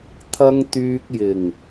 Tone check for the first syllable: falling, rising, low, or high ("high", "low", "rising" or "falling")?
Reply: high